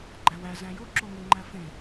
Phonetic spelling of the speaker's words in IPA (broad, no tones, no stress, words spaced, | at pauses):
ɡ͡ǃæwæ zæ̃jo ǁoŋeŋ͡ǃæfẽ